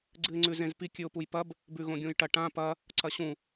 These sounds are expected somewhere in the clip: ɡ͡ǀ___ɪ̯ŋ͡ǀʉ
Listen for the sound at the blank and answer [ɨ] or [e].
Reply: ɨ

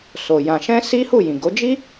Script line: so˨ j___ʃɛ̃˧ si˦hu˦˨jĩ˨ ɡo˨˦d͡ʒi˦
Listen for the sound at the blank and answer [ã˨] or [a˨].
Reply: ã˨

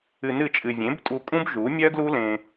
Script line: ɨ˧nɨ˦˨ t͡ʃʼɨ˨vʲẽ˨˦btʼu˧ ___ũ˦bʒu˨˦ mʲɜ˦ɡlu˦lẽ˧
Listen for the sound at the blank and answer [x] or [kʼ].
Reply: kʼ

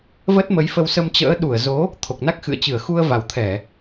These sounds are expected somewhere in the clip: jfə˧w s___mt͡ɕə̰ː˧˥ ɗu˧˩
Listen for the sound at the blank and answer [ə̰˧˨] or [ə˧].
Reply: ə˧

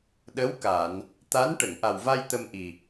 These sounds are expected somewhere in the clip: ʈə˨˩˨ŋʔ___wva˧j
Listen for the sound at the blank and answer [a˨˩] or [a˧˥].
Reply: a˨˩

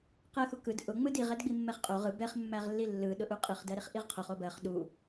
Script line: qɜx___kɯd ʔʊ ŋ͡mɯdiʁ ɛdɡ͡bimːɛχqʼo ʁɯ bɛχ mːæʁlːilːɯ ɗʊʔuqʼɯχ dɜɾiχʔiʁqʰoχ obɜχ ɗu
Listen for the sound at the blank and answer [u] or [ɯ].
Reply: u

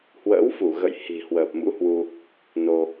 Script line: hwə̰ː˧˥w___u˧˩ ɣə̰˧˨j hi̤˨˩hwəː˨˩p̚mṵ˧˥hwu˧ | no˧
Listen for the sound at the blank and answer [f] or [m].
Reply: f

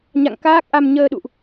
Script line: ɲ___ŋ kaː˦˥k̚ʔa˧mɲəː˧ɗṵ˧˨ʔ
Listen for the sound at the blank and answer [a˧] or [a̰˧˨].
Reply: a̰˧˨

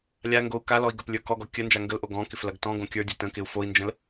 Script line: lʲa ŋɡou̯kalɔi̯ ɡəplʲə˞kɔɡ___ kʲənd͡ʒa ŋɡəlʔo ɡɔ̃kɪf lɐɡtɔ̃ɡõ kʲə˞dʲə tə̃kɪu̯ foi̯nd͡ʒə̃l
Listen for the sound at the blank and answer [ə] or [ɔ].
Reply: ɔ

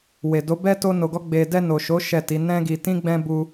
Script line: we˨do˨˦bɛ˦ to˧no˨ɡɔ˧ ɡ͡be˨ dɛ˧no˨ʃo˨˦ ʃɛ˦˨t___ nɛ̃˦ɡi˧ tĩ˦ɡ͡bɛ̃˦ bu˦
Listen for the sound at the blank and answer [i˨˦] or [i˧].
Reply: i˨˦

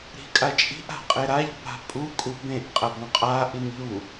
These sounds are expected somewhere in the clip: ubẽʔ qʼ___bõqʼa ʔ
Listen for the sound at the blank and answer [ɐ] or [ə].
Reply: ɐ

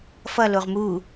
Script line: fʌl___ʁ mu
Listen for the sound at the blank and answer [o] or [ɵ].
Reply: o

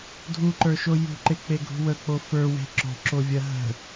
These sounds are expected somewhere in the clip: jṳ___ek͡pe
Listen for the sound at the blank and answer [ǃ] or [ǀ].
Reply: ǃ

